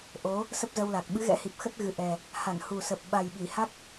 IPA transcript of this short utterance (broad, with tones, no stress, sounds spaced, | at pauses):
ʔ o˨˦ | s ə˦˥ p̚ z ə˧ w l a˨˩ k̚ ɓ ɨ˨˦ ɣ ɛ̰˧˥ h i˨˩ p̚ x ə˦˥ t̚ ɣ ɨ˨˩ ʔ ɛ˨˩ | h a˧˩ n h u˨˩ s ə˨˩ p̚ ɓ a˨˩ j ɓ i˧˩ h a˦˥ k̚